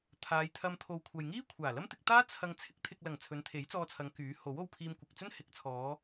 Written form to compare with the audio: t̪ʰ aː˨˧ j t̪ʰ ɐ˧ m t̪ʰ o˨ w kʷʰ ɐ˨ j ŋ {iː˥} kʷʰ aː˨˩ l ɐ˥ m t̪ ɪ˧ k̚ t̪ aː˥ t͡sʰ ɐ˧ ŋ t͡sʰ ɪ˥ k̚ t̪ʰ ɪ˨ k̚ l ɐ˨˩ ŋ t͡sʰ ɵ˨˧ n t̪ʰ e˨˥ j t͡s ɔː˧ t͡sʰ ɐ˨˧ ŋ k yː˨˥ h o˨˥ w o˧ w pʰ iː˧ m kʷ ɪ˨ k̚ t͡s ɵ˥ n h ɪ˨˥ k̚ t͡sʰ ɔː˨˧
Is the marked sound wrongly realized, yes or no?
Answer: no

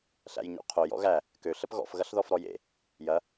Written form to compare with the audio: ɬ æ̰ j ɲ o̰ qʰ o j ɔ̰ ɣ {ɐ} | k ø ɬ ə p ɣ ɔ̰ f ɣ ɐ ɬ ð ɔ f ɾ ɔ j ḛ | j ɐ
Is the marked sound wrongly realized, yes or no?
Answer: yes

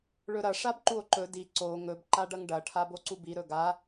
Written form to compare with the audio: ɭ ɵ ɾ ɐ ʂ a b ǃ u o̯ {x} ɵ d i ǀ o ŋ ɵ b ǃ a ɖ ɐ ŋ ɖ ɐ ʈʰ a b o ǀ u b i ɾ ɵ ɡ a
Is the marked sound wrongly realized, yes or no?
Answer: yes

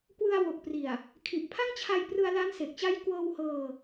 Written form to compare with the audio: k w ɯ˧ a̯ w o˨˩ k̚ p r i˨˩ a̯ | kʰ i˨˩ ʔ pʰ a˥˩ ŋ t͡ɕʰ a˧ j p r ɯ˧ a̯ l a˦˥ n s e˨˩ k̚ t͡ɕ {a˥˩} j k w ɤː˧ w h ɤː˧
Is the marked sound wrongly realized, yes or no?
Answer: yes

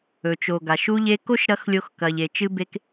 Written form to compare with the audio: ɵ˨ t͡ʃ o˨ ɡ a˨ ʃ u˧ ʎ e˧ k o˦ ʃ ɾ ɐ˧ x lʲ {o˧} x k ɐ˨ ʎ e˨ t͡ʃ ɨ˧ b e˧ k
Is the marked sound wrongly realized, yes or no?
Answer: no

